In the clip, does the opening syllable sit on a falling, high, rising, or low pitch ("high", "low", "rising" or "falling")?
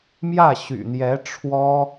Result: falling